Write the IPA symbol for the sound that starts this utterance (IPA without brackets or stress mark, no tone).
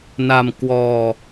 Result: n